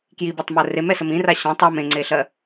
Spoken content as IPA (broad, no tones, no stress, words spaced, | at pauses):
kjibatˤmɜ remɛsəm ĩra ɕãtˤ ɔm ẽŋ͡ǀeɬɜ